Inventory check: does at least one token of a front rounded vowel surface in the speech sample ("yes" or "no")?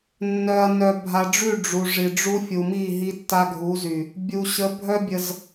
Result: yes